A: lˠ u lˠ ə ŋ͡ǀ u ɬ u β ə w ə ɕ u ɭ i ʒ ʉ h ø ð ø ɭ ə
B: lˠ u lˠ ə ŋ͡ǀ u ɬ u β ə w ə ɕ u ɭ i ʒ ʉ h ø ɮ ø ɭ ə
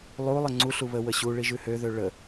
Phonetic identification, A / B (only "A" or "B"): A